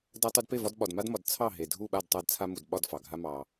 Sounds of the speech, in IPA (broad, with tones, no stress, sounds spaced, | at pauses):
d a˦ tˤ u˦ d p e˥˨ v ɒ˦ d ɓ ɒ˨ d m a˦ d m ɒ˨ d t͡sʰ ɑ˥˨ ɦ e˨ dʱ u˥˨ ɓ a˥˨ d tˤ a˦ d t͡sʰ a˦ m u˨ d ɓ ɒ˥˨ d f ɑ˨ ɡʱ a˦ m ɑ˨